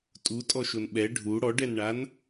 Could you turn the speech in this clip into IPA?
tʼutʼɔʃon ɓɛ ɖʱu ɽɔɖɛnɳan

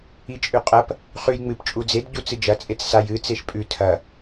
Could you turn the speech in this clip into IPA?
it͡ʃʼʉqʼɐp | χʉj ŋ͡mɨp t͡ʃʼud͡zed ɟut͡sɨd͡ʒɐ t͡sʼet͡ssaj ɨ t͡seʃpʼʉ tʰɐ

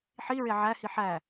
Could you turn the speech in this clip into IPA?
ħiɹe ʕæhi ħæ

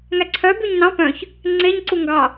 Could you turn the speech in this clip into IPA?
ŋæǀʰœ byɲnɑ̃ pœ̃ç | ŋ͡ǀeɲǀu ŋɡɑ

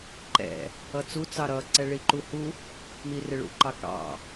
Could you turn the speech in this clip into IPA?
ǃɛ̰ | ʌt͡su t͡sɑɾʌ ǀɛɭiǃuhu | mirɪɭṵ ǃɑkɑ̰

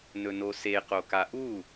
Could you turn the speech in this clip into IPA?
nɵnose qokaʔu

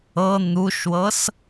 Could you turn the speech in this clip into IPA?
ɤ n̪uʃwɤs

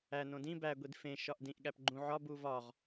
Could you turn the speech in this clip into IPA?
æ nõdĩ bæ ɡʷidfẽ ʃɒʔdĩʔ ɠæpɡ͡ǃũ ʕɒ buvɒʁ

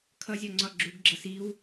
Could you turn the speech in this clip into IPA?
kʰʌzʲɒŋ͡ǀɒ ɡ͡ǁuɡɡ͡ǁʌs iw

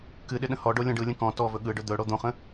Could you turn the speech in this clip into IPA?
kɨɗɪ ɗə̃hɔɖo lʲɔ̃ɖɯlʲə̃ kɔ̃ tɔvɵ ɠɯɖɵ d̪ɵɽo d̪õχə̃

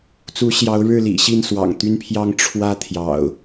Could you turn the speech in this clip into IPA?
t͡su˨˦ɕjɑ˨˦ʊ̯ ɻɻ̩˥˨lḭ˨˩ ɕi˥˨nswɑ̰˨˩ŋt̪y˦npʰjɑ˦ŋ ʈ͡ʂʰwä˦ t̪ʰjɑ̰˨˩ʊ̯

